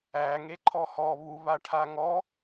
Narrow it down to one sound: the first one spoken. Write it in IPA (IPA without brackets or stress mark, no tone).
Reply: æ